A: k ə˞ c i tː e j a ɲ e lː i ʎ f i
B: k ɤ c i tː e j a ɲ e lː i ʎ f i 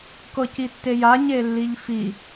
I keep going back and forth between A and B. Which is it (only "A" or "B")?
B